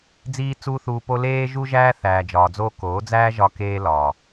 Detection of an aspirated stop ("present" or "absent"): absent